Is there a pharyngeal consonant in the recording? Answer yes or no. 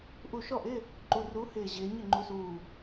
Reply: no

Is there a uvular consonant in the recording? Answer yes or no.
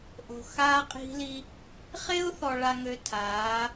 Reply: yes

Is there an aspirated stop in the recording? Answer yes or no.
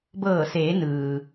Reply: no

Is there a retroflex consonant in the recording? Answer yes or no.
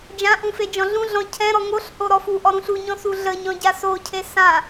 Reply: no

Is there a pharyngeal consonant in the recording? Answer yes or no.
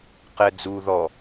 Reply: no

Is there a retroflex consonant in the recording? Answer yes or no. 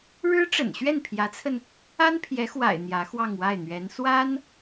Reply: yes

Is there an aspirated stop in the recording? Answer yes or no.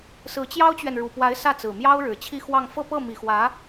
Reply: yes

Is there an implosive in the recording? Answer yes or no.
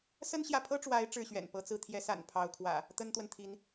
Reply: no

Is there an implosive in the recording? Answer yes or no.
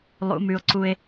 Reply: no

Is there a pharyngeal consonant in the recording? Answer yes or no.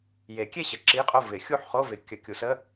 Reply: yes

